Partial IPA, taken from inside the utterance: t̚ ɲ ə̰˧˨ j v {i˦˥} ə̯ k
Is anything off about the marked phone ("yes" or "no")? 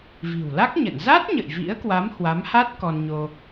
yes